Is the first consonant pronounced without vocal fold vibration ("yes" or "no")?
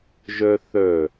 no